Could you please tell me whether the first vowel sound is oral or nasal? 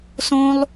nasal